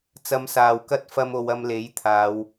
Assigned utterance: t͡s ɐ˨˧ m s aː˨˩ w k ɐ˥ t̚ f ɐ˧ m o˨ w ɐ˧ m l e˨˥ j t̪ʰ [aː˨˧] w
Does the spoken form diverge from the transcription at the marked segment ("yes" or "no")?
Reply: no